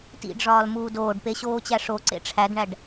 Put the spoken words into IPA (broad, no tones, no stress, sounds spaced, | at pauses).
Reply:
t ḭ ɖ ʐ ɒː l m uː d oː ɖ p e ɕ oː t͡ɕ æ ʂ o ǀ ḛ ʈ͡ʂʰ æ d ɳ æ ɖ